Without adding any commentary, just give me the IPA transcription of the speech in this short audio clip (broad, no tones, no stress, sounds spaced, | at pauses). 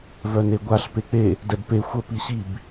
v œ n e ɡʷ a ɬ p e k͡p e | d ɛ b p e xʷ ə p i ɕ i b